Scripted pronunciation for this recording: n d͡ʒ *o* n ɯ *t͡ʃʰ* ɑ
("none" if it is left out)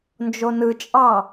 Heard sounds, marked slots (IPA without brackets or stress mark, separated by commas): o, t͡ʃʼ